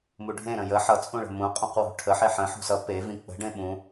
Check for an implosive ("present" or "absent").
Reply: present